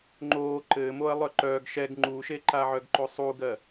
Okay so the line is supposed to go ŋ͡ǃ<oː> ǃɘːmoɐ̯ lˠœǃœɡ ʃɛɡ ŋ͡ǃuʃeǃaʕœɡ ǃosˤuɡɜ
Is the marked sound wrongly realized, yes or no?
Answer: no